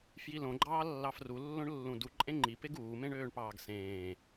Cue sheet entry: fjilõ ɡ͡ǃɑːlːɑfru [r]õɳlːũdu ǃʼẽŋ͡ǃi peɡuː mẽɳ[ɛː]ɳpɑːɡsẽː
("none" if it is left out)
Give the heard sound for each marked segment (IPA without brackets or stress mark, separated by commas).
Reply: lː, øː